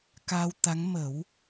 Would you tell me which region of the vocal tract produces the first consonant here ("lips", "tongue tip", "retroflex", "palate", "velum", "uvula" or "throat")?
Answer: velum